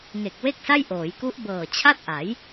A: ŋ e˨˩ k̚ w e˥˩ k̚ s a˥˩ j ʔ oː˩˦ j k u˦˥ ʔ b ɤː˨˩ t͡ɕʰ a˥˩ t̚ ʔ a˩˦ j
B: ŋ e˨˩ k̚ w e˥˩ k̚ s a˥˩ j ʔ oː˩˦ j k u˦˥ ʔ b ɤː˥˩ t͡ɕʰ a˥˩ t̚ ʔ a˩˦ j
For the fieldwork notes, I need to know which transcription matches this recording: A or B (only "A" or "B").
A